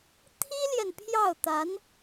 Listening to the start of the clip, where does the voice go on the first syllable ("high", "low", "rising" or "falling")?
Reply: high